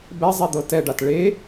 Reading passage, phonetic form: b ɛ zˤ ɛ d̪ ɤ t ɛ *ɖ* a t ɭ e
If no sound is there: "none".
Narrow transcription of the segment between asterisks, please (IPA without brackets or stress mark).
ɖ